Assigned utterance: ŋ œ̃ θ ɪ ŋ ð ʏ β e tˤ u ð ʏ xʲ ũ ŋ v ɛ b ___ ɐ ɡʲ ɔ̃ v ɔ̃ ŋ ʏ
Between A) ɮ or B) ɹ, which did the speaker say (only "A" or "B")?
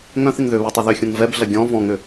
A